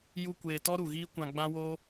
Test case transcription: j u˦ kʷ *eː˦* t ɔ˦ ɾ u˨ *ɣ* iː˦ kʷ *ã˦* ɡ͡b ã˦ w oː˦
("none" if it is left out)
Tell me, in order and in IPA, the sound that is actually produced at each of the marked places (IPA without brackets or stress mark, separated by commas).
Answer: eː˧, ɣ, ã˧